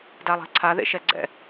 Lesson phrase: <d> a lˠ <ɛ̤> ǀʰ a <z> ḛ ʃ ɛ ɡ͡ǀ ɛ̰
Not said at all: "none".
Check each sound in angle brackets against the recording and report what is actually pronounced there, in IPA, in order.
d, ɛ̤, ð

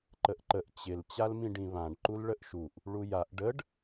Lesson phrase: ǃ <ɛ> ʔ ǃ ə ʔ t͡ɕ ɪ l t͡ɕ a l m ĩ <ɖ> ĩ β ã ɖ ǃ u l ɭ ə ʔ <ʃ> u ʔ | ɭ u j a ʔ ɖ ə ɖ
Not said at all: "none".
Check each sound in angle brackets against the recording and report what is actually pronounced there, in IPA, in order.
ə, ɖ, ʃ

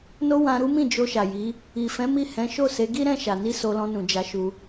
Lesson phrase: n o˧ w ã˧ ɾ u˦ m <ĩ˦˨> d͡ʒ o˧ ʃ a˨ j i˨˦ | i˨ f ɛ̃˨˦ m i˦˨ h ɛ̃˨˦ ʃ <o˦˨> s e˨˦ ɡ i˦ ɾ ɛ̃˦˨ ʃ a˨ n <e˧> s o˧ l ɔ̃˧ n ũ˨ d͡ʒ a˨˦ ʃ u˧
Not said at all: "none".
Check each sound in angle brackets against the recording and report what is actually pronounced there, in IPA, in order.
ĩ˦˨, o˦˨, i˧

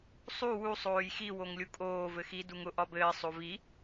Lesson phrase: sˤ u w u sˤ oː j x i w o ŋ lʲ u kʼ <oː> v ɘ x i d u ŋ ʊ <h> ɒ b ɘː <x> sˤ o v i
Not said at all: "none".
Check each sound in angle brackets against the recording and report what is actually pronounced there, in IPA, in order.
oː, ʔ, none

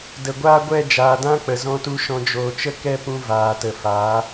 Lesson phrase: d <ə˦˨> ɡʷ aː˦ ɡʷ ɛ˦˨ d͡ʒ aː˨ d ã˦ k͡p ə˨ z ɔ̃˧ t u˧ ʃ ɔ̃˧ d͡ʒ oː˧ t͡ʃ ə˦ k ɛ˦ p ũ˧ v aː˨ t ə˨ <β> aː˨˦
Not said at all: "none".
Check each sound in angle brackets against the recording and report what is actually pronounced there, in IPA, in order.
ə˨, f

